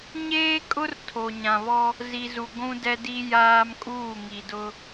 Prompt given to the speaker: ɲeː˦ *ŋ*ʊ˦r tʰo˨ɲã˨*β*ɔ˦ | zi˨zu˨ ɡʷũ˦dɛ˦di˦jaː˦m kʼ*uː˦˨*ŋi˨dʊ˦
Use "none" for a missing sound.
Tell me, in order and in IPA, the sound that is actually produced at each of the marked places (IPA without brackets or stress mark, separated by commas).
kʼ, β, uː˦˨